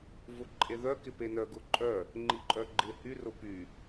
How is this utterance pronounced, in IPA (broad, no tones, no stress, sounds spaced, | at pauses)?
v ʊ ǃʼ e ð œ k ɪ p e n œ ɡ ʊ ǃʼ œ | ŋ͡ǃ i ǃʼ œ ɡ͡ǃ ɪ h y r ʊ p y